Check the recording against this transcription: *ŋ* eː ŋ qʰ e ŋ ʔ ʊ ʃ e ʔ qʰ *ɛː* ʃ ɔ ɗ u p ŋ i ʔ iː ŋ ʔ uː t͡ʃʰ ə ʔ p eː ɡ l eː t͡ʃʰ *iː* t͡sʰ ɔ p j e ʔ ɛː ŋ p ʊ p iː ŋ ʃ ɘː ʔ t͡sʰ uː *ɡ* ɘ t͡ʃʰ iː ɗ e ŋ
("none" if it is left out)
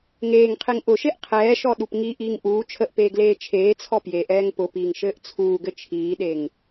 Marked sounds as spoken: ŋ, ɛː, eː, ɡ

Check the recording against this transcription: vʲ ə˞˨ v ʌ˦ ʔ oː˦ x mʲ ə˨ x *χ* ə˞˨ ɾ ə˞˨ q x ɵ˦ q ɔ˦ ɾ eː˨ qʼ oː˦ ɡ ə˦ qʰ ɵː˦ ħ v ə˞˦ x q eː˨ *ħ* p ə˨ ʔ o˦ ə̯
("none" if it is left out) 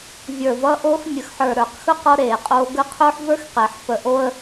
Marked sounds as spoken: ħ, ħ

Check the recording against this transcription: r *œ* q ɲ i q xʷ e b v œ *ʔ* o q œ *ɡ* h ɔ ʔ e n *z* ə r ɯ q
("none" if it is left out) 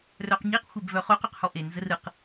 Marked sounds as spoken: œ, χ, q, z

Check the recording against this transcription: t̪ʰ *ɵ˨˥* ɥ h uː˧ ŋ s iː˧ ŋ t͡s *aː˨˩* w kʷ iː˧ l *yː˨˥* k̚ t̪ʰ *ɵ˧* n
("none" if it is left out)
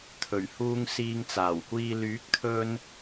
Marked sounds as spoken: ɵ˨˩, aː˨˩, yː˨˥, ɵ˧

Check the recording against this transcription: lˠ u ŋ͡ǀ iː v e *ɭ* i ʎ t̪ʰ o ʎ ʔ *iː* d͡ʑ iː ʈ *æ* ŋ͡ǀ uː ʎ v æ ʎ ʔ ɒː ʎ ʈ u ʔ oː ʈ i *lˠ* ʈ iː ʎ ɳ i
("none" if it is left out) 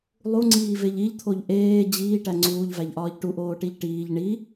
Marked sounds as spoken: ʎ, eː, æ, ʎ

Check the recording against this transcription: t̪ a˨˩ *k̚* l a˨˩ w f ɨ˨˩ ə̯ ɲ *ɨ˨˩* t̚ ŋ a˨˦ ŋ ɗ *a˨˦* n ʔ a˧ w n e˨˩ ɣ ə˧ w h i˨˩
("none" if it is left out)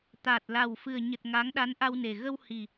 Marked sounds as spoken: t̚, ə˨˩, a˨˦

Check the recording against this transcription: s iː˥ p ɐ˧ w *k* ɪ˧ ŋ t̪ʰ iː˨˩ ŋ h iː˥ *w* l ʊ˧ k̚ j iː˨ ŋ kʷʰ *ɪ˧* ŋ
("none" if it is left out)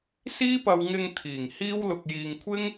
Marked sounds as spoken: ŋ, w, ɪ˥

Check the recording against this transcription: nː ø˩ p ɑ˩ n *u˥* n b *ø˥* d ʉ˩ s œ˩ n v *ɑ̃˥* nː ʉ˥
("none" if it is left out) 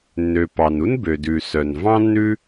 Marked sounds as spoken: u˥, ø˩, ɑ̃˥

